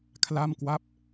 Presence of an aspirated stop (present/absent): present